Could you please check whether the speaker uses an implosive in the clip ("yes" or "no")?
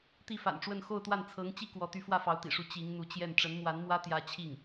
no